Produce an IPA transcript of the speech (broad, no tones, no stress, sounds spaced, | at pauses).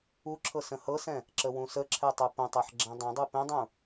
u ǁʰ ɤ s ə̃ h ɤ s ɛ̃ | ǁ ə w ũ s ə ǁʰ ɛ tˤ u p ə̃ tˤ ɛ ħ ɡ͡ǁ ɛ̃ dˤ ɛ̃ dˤ u p ẽ dˤ ũ